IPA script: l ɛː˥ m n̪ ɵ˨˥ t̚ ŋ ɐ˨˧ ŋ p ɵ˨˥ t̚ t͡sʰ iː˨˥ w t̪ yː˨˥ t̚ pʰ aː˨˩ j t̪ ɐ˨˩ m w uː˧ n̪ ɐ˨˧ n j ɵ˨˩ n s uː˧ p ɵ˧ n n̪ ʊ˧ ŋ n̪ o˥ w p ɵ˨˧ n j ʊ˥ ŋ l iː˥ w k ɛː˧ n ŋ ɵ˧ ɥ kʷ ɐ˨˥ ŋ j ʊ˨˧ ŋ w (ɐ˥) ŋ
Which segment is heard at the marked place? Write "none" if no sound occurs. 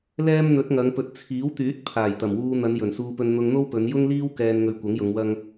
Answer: ɐ˥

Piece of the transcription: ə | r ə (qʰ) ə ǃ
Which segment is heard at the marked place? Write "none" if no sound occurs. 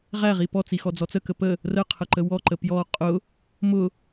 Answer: qʰ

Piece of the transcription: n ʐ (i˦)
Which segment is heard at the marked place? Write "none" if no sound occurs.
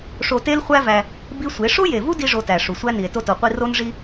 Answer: i˦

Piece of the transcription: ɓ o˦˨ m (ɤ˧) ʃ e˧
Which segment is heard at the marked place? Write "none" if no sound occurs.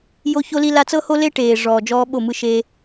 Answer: ɯ˧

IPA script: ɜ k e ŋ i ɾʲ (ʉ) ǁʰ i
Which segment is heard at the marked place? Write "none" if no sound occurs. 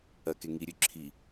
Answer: ʉ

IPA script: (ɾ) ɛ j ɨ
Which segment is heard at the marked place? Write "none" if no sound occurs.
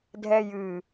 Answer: dʱ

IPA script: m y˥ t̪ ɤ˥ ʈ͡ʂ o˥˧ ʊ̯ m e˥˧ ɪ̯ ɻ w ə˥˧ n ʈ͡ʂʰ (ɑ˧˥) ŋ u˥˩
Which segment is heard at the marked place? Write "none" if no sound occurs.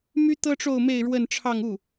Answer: ɑ˥˧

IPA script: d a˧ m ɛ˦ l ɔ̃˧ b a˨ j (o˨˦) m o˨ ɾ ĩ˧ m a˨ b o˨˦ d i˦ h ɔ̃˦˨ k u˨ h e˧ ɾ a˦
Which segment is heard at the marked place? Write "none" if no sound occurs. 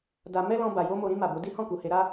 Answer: o˧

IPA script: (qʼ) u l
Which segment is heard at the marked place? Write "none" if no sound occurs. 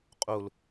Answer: qʼ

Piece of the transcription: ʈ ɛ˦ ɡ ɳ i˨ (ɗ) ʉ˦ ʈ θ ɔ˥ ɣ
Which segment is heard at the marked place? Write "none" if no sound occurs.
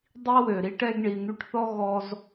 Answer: n̪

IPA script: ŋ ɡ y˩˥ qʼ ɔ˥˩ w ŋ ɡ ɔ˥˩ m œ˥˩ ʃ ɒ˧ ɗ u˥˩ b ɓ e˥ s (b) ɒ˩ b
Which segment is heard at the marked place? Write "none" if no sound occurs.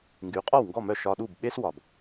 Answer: w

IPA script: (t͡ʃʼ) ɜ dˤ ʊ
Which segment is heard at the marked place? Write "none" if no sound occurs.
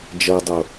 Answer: d͡ʒ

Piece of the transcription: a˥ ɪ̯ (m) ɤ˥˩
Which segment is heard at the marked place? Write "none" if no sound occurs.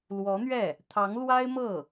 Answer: m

